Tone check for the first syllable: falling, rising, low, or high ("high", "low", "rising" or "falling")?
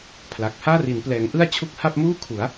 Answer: low